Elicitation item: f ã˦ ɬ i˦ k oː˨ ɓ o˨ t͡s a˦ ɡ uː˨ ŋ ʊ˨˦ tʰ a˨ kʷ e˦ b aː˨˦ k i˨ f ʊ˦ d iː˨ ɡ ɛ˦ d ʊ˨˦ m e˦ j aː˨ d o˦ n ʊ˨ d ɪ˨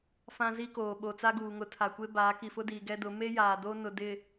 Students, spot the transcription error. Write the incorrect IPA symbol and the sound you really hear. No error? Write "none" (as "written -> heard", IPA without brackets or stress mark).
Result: ɬ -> z